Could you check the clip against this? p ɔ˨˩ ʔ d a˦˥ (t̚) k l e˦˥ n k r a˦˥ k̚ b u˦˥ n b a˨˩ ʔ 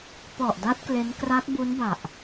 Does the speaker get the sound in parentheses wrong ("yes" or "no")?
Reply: no